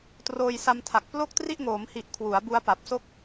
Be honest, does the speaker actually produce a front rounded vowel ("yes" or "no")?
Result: no